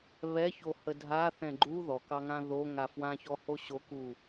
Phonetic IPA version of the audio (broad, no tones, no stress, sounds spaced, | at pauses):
β ɛ ç o h ə dʱ a θ ɛ̃ ɡ͡ǃ u ð ɔ k ɑ ŋ ã ð o ŋ a f w ã ç ɔ h o ɕ o k u